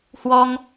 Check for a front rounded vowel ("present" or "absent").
absent